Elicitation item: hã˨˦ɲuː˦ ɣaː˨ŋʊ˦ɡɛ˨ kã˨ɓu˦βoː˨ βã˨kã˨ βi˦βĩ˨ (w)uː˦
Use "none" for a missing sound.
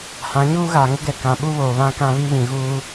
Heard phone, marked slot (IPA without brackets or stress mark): ɣ